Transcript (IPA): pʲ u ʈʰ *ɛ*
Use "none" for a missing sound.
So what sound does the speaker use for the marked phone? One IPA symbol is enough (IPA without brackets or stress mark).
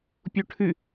ɨ